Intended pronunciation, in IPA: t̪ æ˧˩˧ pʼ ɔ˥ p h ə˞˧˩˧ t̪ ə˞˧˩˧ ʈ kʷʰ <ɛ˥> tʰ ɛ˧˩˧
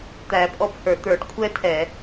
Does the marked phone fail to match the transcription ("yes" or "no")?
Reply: no